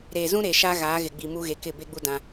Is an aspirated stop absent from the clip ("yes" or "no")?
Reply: yes